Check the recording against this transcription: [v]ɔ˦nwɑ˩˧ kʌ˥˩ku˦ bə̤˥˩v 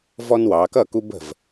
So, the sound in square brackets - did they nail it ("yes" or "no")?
yes